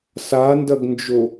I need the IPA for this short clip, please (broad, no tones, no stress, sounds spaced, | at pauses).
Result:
s a n d ɐ ɡ n d͡ʒ o